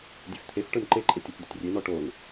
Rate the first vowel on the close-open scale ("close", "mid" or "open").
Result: mid